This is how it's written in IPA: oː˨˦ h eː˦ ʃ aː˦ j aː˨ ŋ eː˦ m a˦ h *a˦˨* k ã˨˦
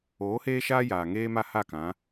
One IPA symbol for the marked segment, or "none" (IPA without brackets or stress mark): a˦˨